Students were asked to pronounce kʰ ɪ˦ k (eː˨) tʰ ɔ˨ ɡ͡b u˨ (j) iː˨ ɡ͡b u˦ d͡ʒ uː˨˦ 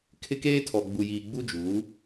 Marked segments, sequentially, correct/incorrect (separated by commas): incorrect, correct